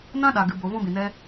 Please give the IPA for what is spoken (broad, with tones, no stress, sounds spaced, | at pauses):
n ã˦ ɗ a˨ ɡ ɨ˨ b o˨ v ɔ̃˦ b ĩ˨ n ɛ˦